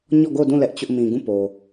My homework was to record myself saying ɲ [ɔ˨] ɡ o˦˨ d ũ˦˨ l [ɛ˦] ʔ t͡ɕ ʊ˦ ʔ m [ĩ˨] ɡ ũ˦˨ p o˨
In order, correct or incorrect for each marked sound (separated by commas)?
incorrect, correct, correct